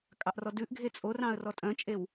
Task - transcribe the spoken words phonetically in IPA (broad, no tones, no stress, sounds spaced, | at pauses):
kʼ ɑ ʔ r ɔ d ʉ ʔ ɡʱ e t͡sʼ o r ɑ̃ ə̯ r ɔ tʼ œ̃ t͡ʃʼ e w